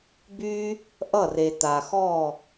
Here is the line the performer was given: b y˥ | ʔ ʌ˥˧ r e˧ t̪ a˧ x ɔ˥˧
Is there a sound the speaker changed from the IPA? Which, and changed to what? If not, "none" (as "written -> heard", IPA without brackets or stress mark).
none